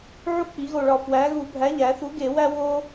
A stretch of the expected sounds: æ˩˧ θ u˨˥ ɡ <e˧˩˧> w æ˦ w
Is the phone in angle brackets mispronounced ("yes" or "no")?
no